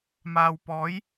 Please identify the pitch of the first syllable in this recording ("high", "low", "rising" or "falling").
low